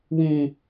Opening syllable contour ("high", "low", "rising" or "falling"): low